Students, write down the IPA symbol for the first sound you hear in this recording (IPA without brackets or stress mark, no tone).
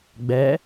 ɡ͡b